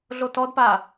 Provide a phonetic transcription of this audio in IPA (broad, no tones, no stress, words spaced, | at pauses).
ɮotɔdpa